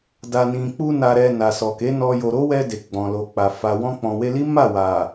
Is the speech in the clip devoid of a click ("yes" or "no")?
yes